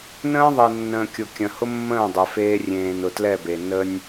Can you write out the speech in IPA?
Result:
n ə̃ː˦ ðˤ e˨ nː ə̃ː˨ kʲ ʊ˨ kʲ ə̃˨ h ʊ˦ mː ə̃ː˦˨ dˤ e˨ f eː˧ rʲ ẽː˨ n ʊ˨ t l ɛ˦˨ b e˨ n ə˧ nʲ

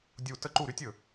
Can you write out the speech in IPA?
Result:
dʲ u˧˩ t ə˥˩ ǃ u˥˩ ɾ y˦˥ tʲ ɵ˧˩

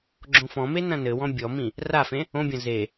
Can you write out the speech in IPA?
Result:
ɡ͡ǁ õ f ɔ̃ m e n ɐ̃ n ɘ w ɔ̃ bʲ ɔ m ĩ | r a f ẽ | õ bʲ ɐ̃ z e

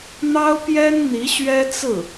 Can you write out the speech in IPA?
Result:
n̪ ɑ˥ ʊ̯ p j ɛ˥ n n̪ i˧˥ ɕ ɥ ɛ˥ t͡s ɹ̩˥˩

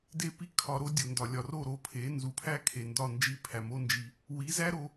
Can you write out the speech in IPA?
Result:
d e˦ p i˦ kʰ ɒ˧ ɾ o˦ dʲ o˨ n d ɒ˨ lʲ ɒ˨ r o˦˨ ɾ o˧ pʰ e˨˦ n z u˨ pʰ æ˦ kʰ e˨ n d ɒ˦˨ n d͡ʒ i˦˨ pʰ æ˨ m o˦ n d͡ʒ i˧ | w i˨˦ z æ˦ ɾ o˧

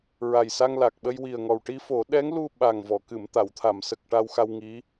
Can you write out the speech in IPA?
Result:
ɹ a˨˩ j s a˧ ŋ l a˨˩ k̚ ɓ ə˧ j w i˨˩ ə̯ ŋ ɔ˨˩ w ʈ i˧ f o˨˩˦ ɗ ɛ˧˥ ŋ l u˧ ɓ a˨˩ ŋ v ɔ˨˩˨ k ɨ˨˩˨ m t̪ a˨˩˨ w t̪ʰ a˨˩˨ m s ə˨˩ k̚ ʈ a˧ w x a˧ w ŋ i˧˥

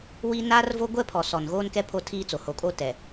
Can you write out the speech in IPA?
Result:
w i˦ n aː˦ r v o˦ ɡʷ ɛ˦ pʰ ɔ˨ s ɔ˨ n ɣ oː˦ n k ɛ˦ pʰ o˦ tʰ iː˦ t͡s o˨ h o˨ kʼ o˦ t ɛ˨

